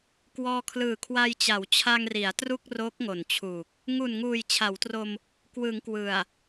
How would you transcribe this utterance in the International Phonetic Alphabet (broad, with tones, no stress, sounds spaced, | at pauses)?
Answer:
k w ɔː˧ kʰ l ɯː˨˩ kʰ w a˧ j t͡ɕ a˩˦ w t͡ɕʰ a˧ ŋ r i˩˦ a̯ t r u˥˩ k̚ r o˦˥ k̚ ŋ o˨˩ n t͡ɕʰ uː˨˩ k̚ | ŋ u˨˩ n ŋ uː˨˩ j t͡ɕʰ a˩˦ w t r o˧ m | k w ɯ˩˦ ŋ k w ɯ˨˩ a̯